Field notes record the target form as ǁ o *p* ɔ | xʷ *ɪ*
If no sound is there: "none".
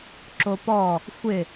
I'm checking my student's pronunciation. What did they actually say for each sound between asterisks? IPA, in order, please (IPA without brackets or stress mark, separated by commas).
p, ɪ